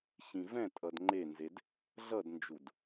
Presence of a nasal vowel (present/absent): present